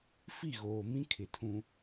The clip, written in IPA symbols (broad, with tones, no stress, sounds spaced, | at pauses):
f i˦˨ ɣ oː˨ m ĩ˦ kʰ ɪ˨ tʰ ũ˦